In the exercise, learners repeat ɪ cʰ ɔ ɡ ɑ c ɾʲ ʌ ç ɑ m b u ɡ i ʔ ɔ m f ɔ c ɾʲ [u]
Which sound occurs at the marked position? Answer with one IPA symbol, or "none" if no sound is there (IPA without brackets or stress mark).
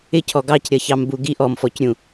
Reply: ũ